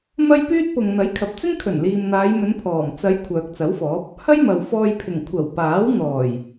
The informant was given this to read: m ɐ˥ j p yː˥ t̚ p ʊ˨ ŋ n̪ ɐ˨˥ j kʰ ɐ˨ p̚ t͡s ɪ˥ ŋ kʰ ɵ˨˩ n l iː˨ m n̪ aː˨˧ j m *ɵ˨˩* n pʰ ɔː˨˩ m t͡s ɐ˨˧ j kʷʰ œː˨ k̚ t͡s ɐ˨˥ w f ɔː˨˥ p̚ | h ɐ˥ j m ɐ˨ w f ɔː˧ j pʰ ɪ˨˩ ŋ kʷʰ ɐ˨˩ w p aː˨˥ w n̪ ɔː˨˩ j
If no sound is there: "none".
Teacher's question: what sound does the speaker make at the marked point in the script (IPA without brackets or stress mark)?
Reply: ɵ˨˧